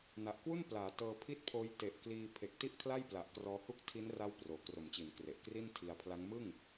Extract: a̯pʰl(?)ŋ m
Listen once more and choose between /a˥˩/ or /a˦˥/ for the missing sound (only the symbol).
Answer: a˦˥